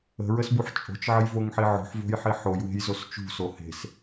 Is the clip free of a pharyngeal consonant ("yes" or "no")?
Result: no